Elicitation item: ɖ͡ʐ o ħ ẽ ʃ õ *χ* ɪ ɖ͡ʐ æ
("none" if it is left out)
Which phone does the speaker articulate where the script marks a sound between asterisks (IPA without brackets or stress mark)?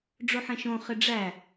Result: χ